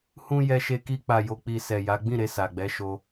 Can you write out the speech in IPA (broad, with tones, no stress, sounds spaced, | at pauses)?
h ũ˧ j ɛ˧ ʃ e˧ k i˧ k͡p a˨ j o˨ k͡p i˨ s ɛ˨ j a˨˦ ɡ͡b ĩ˦˨ ɾ e˧ s a˨ ɡ͡b ɛ˨˦ ʃ o˧